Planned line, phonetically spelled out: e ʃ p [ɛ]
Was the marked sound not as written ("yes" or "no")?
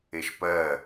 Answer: yes